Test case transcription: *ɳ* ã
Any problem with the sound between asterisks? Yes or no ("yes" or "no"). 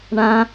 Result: no